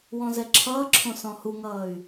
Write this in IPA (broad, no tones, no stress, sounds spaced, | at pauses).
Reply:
w ɔ̃ z ɛ ǁʰ ʌː ǁʰ õ s ɔ̃ h u ŋ ʌː y̯